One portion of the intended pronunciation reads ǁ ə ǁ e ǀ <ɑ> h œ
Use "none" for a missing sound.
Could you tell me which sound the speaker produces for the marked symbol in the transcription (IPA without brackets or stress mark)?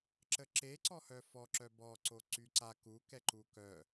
ɔ